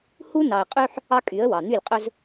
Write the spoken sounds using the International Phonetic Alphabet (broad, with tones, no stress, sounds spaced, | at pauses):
h u˦ n ɑ˨ ə̯ qʼ y˦ ħ | ɑ˦ kʼ y˨˦ ə̯ w ɑ˨ n̪ y˦˨ lʲ qʼ ɵ˦ z